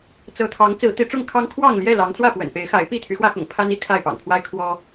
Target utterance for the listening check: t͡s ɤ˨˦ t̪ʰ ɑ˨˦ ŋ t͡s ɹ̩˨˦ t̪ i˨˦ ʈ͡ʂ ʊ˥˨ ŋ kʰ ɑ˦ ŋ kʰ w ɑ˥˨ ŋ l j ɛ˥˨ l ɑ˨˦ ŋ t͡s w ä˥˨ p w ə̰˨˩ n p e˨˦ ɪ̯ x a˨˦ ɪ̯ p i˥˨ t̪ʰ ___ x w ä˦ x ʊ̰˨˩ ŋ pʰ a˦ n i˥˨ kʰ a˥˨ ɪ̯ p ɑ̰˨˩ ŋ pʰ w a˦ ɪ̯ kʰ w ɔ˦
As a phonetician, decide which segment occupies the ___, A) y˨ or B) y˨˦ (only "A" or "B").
B